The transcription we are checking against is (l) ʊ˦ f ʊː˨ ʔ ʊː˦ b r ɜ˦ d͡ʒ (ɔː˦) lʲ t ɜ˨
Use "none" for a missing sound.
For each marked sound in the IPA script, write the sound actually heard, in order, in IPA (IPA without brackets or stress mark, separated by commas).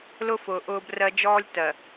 l, ɔː˦